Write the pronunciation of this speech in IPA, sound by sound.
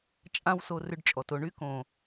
t͡ʃʼ ã˦ w s o˧ r ʏ˧ ɖ t͡ʃʼ ɔ˨ t o˧ ɳ y˦ k õ˨

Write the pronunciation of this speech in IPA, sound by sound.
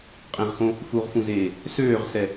qʼ ẽ ʁ x õ | f u ʁ f ũ z eː | s øː ʁ s ɛ

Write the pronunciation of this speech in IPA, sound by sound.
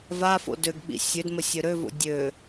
v a f o̰ d ø ɡ ɓ ḭ sʲ ø d m ə sʲ ø ɾ ø v o̰ dʲ ø

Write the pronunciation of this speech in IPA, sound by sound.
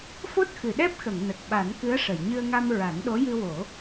f o˦˥ t̚ x ɨ˨˩˨ ɗ ɛ˦˥ p̚ x ə˨˩˨ ŋ n ə˨˩ k̚ ɓ a˨˩˦ n k ɨ˧˥ ə̯ ʂ ə˨˩˨ j ɲ ɨ˧ ə̯ ŋ a˧ m ɹ a˨˩˦ n ɗ o˧˥ j ɨ˧ w o˨˩˦

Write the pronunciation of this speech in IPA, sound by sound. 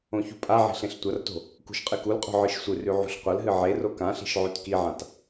õ ç ṳ pʼ a ʕ i̤ ɬ ẽ ɬ tʷ ɐ r t o̤ | k ṳ ʃ qʼ ɨ k u l qʼ o̤ ʕ ɨ ʃ sʷ ɨ r ʉ ʕ ṳ ɬ qʷ ɐ l ɦ ɨ ʕ e r o k ã ɬ i̤ ʃ ʕ ʉ t k i ʕ ã t

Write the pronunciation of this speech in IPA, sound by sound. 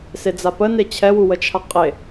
s e d͡z a p ə n e t͡ɕʰ ɛ w u w ə t͡ʃʰ a qʼ e

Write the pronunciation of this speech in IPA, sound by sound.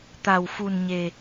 t̪ a˨˩ w f u˨˩ n ɲ e˨˩

